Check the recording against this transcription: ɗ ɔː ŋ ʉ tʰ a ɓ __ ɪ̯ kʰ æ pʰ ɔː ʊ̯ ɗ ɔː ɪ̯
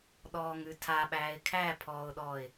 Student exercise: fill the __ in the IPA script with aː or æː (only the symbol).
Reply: æː